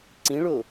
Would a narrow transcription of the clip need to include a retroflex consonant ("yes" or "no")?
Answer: yes